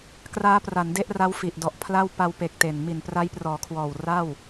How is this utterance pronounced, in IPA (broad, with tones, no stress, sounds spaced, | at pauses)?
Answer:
k r aː˦˥ p r a˩˦ n d e˦˥ ʔ r a˦˥ w f i˨˩ ʔ d ɔ˨˩ ʔ pʰ l a˥˩ w p a˧ w p e˨˩ k̚ t e˨˩ n m i˨˩ n p r a˦˥ j p r ɔː˩˦ kʰ w ɔː˨˩ w r a˥˩ w